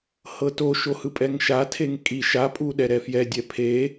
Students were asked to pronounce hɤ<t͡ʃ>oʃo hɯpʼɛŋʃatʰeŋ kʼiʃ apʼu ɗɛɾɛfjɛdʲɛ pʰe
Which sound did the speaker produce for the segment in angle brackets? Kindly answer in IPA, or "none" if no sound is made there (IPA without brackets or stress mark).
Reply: t